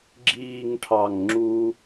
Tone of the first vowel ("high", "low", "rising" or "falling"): falling